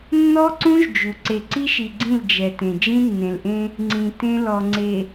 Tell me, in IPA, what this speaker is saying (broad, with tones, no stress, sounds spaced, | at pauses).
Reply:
nː ɔ˦ ǀ ũ˦ ʒ d͡ʒ u˨ ǀ e˨ ǀ i˦ ʃ i˨ ɡ͡ǀ ĩ˦˨ l d͡ʒ ɛ˨ t ẽ˨ d͡ʒ ĩ˦ nː ẽ˨ l ʔ ẽ˦ | ŋ͡ǀ ĩ˨ t ẽ˦ l ɔ˨ ŋ͡ǀ e˨